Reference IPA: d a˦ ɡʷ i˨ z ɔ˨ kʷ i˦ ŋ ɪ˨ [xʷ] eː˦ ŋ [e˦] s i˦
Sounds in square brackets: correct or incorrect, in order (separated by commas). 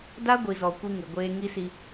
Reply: incorrect, incorrect